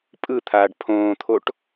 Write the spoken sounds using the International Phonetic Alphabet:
pʼ ɯ t̪ʰ aː ɖ pʰ õː t̪ʰ o ʈ

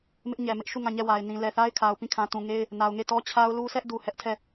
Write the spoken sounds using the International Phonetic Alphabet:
m ɪ˦ ʔ ɲ ɛ˨ m ɪ˦ ʔ ʃ u˦˨ ŋ ã˦˨ ɲ ɛ˦˨ w a˨ ɪ̯ n ĩ˨ l ɛ˨ θ a˦ ɪ̯ kʰ a˨ ʊ̯ p ĩ˦˨ kʰ ã˨ t ũ˨ ŋ e˦ ɪ̯ | n a˨ ʊ̯ ŋ e˦˨ t ɔ˦ t͡ɕʰ a˦ ʊ̯ l u˦ s ɛ˦ ʔ d u˨ h ɛ˦ ʔ tʰ ɛ˦˨

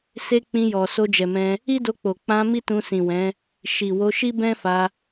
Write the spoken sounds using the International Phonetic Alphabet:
s e˧ k͡p ĩ˧ j ɔ˨ s o˧ d͡ʒ ɛ˨ m ɛ̃˧ | i˦ d o˧ k͡p o˨ k͡p ã˧ m i˦ t ũ˧ s ĩ˨ w ɛ̃˨˦ | ʃ i˨ w o˧ ʃ i˦ b ɛ̃˦ f a˧

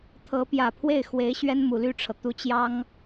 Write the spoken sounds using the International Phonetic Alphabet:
t̪ʰ ɤ˧˥ p j ä˨˩ pʰ w e˥˩ ɪ̯ x w e˧˥ ɪ̯ ɕ ɥ ɛ˥ n m u˨˩ l y˥˩ ʈ͡ʂʰ ɤ˩ t̪ u˧˥ t͡ɕ j ɑ˥ ŋ

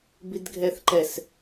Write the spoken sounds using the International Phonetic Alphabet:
b i d ɡʱ ɛ θ ǃ ɛ s

